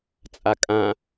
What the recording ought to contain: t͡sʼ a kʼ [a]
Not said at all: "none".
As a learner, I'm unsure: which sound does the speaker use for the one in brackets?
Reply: ã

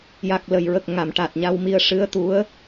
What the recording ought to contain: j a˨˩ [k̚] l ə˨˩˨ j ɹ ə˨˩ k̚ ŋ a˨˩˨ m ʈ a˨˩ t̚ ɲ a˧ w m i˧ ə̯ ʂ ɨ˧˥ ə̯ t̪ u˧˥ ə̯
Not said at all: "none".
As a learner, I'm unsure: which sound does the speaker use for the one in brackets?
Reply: k̚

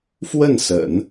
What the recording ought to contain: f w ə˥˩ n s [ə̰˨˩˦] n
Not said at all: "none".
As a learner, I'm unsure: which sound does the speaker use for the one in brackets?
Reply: ə̰˨˩˦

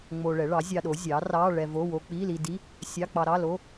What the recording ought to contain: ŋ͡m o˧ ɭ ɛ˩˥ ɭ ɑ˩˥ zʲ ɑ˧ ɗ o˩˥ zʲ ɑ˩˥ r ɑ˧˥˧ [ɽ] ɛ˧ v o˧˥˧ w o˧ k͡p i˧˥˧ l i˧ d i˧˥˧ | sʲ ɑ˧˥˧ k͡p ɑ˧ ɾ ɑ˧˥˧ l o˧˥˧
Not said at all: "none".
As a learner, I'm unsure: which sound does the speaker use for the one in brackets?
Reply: ɭ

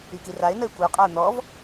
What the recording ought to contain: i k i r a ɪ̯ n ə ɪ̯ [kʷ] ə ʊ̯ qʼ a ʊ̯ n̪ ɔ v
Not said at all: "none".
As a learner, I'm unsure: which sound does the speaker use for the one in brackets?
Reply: kʷ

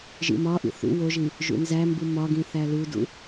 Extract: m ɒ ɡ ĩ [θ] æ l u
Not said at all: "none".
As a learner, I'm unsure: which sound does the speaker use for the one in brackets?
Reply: θ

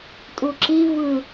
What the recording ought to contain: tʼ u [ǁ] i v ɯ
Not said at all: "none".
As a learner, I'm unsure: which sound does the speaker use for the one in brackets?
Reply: ǁ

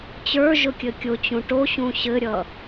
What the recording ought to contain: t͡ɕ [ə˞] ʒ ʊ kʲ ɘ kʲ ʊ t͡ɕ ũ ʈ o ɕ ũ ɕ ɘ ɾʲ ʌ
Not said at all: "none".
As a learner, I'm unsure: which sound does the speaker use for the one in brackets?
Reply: ə˞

